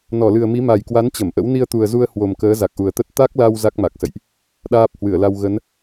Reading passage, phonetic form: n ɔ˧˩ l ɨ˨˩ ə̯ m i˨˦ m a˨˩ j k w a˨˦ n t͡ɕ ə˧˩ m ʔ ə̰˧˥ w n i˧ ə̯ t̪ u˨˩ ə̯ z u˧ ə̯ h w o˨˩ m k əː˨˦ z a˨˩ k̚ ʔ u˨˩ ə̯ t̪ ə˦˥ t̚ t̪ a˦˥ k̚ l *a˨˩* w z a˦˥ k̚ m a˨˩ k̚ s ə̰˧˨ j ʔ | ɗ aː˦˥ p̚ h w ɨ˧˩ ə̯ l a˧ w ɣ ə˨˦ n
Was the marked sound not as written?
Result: yes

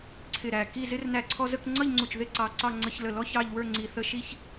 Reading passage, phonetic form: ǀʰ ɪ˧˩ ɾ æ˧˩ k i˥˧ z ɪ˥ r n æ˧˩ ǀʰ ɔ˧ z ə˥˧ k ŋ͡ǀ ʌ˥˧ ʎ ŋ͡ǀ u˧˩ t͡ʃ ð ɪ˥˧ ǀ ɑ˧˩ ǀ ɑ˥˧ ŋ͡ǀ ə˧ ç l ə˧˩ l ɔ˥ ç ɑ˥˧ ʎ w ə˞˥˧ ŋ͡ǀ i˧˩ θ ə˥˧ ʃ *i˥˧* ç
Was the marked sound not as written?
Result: no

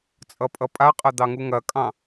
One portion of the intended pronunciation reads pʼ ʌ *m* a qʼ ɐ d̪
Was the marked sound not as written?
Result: yes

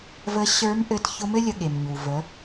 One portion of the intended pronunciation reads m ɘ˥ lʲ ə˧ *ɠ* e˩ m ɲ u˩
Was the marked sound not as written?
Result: no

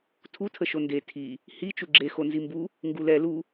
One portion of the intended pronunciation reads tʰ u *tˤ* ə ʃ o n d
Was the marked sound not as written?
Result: yes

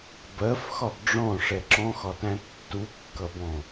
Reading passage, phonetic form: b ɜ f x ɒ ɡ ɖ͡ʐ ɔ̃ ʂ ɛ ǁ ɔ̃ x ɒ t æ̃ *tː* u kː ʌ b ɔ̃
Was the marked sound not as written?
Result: no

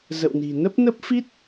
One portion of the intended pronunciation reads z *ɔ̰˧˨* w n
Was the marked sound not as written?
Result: yes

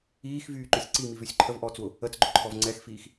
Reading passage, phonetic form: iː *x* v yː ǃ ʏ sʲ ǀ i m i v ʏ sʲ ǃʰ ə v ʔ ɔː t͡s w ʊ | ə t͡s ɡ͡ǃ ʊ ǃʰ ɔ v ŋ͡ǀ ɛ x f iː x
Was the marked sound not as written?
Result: no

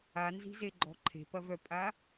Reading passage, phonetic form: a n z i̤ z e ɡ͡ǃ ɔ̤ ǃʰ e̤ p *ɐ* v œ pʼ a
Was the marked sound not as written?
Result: no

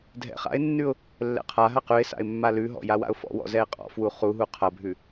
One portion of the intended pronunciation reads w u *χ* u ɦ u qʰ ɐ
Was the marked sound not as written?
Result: no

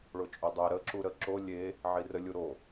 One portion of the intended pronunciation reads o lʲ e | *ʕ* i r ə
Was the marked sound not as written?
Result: no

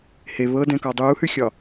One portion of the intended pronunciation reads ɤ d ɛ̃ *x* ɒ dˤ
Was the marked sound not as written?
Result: yes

